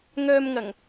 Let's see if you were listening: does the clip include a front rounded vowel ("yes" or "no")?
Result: yes